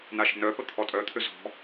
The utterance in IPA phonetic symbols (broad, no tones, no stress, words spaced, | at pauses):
naʃə̤nœpə t̪ʰɔtʼœt̪ʰʏ zɔ̤